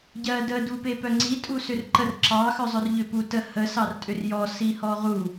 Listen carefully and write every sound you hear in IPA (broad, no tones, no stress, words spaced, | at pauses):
ɟɜdə dupepœŋ͡ǀi tʼusʏrǃər ǁɑ xœzˤœrʎʏ putə hə sɑrtʼʏrjɔ sihɔʁu